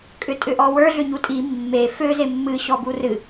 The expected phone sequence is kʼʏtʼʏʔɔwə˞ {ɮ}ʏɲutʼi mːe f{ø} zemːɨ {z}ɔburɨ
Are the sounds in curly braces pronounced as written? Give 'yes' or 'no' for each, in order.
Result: yes, yes, no

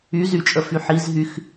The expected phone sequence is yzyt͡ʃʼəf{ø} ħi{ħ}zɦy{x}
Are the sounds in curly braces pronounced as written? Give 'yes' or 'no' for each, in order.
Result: no, no, yes

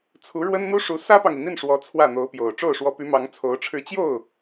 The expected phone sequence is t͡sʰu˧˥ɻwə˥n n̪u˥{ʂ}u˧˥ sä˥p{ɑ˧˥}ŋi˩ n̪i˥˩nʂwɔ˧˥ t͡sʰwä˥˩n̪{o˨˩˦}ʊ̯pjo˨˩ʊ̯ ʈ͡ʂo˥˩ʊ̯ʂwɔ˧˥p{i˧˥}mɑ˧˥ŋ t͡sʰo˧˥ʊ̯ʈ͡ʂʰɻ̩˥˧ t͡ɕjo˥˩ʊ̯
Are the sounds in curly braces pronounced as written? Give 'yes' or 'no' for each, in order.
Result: yes, no, no, no

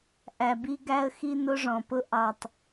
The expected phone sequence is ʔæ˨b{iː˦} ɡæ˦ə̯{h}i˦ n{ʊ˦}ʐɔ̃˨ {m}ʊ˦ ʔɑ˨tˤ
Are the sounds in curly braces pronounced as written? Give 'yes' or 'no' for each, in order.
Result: no, no, yes, no

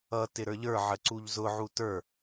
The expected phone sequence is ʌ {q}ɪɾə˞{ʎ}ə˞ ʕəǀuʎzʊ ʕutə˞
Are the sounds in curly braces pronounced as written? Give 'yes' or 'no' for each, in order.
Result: no, yes

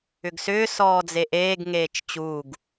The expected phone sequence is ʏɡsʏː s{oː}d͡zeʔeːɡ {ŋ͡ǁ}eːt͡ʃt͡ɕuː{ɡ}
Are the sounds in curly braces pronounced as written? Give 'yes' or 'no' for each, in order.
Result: no, no, yes

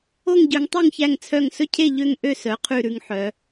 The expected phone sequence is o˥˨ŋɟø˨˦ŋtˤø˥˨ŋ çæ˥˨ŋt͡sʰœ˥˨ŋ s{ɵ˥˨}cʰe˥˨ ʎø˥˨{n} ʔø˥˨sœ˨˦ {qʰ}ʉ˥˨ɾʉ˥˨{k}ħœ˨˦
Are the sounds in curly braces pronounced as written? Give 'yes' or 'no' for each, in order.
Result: yes, no, yes, no

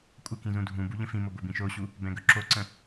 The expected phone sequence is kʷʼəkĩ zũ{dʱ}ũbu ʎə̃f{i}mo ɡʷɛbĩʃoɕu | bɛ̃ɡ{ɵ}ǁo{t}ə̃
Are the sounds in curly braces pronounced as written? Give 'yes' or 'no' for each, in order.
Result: yes, no, yes, no

